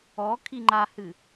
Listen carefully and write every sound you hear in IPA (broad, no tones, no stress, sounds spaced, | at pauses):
ɔ kʰ i ŋ͡ǃ a h ɨ